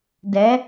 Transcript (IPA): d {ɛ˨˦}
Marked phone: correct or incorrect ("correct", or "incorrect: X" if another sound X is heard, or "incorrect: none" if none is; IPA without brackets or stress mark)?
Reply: correct